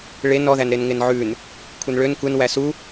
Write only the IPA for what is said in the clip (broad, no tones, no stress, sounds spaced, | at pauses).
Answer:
ɭ e n ɔ ð æ n ɾ e n ŋ e n ʕ ʉ n | kʷʰ e n ɭ ø n kʷ e n w æ s u